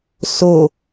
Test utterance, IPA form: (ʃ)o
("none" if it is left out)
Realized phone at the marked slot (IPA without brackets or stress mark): s